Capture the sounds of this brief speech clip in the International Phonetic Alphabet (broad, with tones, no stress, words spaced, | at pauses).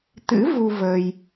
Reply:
t̪ɨ̰˧˥ vu˧ və˧j